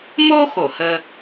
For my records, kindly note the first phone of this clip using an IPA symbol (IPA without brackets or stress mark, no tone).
m